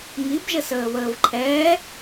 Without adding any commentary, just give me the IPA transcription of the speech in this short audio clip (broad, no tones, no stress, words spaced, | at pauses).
ŋibʒəs əːβəːvǃʰɛː